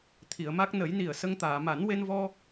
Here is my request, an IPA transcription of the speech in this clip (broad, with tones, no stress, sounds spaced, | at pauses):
t̪ʰ i˨˩˨ ə̯ m a˦˥ k̚ n ə˨˩˦ j n i˨˩ ə̯ s ə˧ ŋ t̪ aː˨˩˨ m a˨˩˦ n w e˧ n v ɔ˧